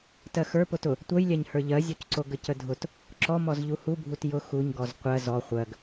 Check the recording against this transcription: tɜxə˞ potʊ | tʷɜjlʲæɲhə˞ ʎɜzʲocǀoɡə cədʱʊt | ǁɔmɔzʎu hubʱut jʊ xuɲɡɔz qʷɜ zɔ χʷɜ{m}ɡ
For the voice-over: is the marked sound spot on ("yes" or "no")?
no